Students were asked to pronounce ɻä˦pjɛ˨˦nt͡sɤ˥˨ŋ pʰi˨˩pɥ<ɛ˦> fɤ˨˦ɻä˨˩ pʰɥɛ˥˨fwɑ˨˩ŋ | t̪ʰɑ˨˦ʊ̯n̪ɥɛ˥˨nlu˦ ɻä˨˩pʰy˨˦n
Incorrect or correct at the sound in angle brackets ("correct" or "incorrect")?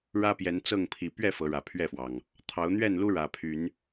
incorrect